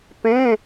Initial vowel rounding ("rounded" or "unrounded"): unrounded